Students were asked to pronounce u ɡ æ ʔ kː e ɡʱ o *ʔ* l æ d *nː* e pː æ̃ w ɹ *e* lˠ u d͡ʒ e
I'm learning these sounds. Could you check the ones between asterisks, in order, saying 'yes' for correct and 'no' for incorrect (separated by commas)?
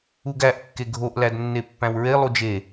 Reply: yes, yes, yes